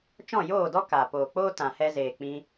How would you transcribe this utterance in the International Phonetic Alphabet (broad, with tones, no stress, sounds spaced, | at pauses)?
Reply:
t͡ʃ ɔ̃˦˨ j oː˦˨ d ɔ˦ k aː˨ p oː˨ k͡p oː˦ t ã˨ h ɛ˧ z eː˨ k͡p ĩ˧